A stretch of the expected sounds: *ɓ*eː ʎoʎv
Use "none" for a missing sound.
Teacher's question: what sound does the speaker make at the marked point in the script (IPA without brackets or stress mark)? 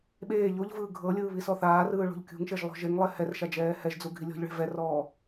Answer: ɓ